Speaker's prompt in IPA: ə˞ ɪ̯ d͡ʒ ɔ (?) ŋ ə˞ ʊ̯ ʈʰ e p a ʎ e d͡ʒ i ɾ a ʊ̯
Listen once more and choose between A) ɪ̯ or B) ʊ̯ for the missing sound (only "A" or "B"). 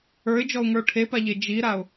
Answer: B